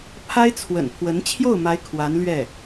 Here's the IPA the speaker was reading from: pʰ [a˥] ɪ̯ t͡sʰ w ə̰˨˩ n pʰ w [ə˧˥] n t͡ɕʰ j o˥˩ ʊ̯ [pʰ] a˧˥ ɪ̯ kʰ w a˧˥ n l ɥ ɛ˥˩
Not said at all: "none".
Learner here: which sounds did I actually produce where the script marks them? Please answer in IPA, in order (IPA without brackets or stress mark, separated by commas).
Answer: a˥, ə˧˥, m